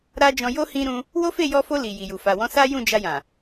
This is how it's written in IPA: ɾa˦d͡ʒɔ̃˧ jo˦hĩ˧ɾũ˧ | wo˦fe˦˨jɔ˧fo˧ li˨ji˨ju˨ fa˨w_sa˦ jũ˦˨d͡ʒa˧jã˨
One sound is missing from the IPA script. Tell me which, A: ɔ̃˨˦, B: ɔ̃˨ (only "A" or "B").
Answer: A